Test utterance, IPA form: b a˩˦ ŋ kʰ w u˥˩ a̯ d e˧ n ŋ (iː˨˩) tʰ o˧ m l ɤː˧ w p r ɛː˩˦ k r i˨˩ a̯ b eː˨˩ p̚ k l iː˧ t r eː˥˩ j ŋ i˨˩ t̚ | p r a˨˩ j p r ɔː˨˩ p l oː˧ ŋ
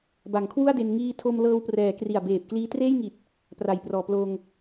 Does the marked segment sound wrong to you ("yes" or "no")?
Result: yes